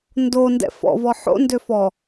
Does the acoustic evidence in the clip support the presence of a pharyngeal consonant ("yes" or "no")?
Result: yes